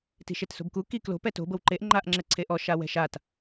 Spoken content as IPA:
t i̤ ʃ e t s o̤ b k u k i k l o̤ p ɛ t o̤ b ɤ w ǃ e ʔ ŋ͡ǃ a ʔ ŋ͡ǁ ɛ ǀʰ e ʔ ɔ ʃ a w ɛ̤ ʃ a t

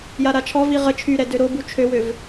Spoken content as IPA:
j a ɾ a t͡ʃʰ ɔ v i ʁ ə t͡ʃʰ y ɾ ɛ d ø ɾ o b u t͡ʃʰ ø w ø v

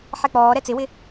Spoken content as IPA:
ħ ɛ k͡p ɔː ɾ ɛ t͡s ɪ w ɪ

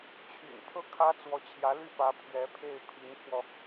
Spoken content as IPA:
t͡ɕʰ y̰˨˩ n pʰ ɤ˥˩ kʰ ä˥ t͡s w ɔ˧˥ t͡ɕʰ j ä˧˥ l y˥˩ p ä˧˥ pʰ ɥ ɛ˧˥ pʰ e˥˩ ɪ̯ pʰ i˧˥ n pʰ w ɔ˧

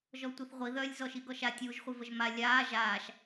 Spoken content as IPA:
ʒ ɔ tʷ i θ ʁʷ i ð œ lʲ z ɔ ʃ i ɡ ɔ ʃ a tʲ uː ʒ χʷ i v ə ʒ m a lʲ aː ʒ aː ʃ

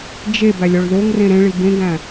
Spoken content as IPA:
d͡ʒ e b æ lʲ ɒ ɭ ð o ŋ r ẽ ɾ ẽ ɭ i b ẽ ɡ æ̃

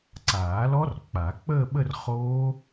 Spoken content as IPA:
ǀ aː˨˩˦ l ɔ˦˥ r k͡p a˨˩˦ k͡p əː˥˧ ɓ ə˥˧ r χ oː˦˥

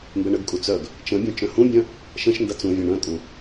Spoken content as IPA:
m b ɛ ɳ ə ɡ kʼ u t͡s œ ɡ | t͡ʃ ə̃ bʲ œ̃ t͡ʃ œ̃ h ũ bʲ œ̃ | ʃ ə̃ ʃ n d ɐ t͡s ũ vʲ œ̃ ɳ œ̃ kʼ ũ

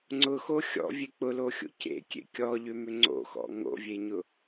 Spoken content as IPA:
ŋ͡ǀ ʊ x o xʲ ɔ̰ vʲ e k͡p ʊ l o xʲ o̰ c ḛ kʲ ḛ kʲ ɔ ʎ ʏ m ʏ ŋ͡ǀ o̰ x ɔ̰ ŋ o̰ vʲ e ɲ ʊ

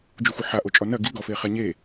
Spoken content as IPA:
d͡ʒ u xʷ ɘ ħ a ʔ o t͡ʃʼ ɔ n ɐ ɡ i ɡ ɔ f e χ ɛ ɲ e

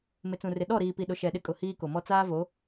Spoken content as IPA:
m ɪ˨ t͡s ũ˨ r ɪ˨ ɗ ɔ˦˨ ɾ iː˨ p i˨ ɗ ʊ˨ ʃ ɛ˨ ɗ ɪ˦ kʼ ʊ˨ h iː˦ k o˨ m ɔ˦ t͡s aː˦ v o˨˦

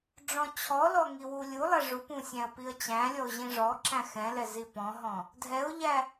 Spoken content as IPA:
ɖ͡ʐ ɔ̃ t͡ɕʰ ɔ l ɔ ŋ i w u lʲ u lˠ ɛ ʐ u p ũ sʲ æ̃ ə̯ p i ə̯ t͡ɕ æ̃ lʲ ɔ ʊ̯ ʑ ĩ ʐ ɔ ǁ æ̃ x ɛ̃ l ɛ z i p ɔ̃ ɦ ɔ̃ | dʱ ɛ ʊ̯ ʎ æ

